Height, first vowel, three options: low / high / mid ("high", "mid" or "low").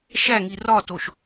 low